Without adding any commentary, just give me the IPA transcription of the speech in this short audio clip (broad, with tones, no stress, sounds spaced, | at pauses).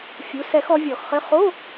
fʲ u˩˧˩ s ɛ˧˩˧ x ɔ˩˥ vʲ ɔ˧˩˧ x χ ɘ˧˥˧ χ o˧˥˧